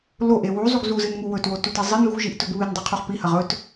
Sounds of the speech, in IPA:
loʔe wuzˤuɡ zuzɨnŋu wɵtwotute zˤɨn ɣuʒiʔtɵɡ βɨndˤoqʰuχ pihɐʁ ɵt

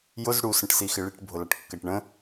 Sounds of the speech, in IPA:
jʊz ɽu sə̃ʈsixɪɭiʈ bʱʊlɑʈkːɜʈɳə̃

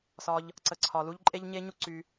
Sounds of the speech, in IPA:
sɒ˧ʎ | ǀə˨ǀʰɒ˨lu˦ʎ ǃʼe˦ʎɲe˦ɲu˦ ǀy˧

